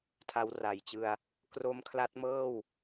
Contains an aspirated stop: yes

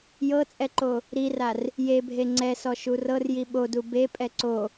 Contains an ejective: yes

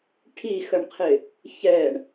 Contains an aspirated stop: yes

